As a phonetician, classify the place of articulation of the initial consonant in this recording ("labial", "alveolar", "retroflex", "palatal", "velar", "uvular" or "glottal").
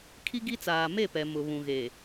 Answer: velar